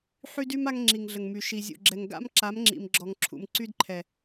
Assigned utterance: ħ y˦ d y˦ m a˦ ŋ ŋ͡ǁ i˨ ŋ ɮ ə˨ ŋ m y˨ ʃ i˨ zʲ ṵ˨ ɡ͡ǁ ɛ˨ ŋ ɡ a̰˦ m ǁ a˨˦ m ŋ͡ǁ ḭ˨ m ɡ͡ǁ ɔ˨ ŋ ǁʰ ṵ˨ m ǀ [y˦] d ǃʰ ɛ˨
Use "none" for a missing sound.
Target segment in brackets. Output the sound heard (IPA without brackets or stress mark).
y˦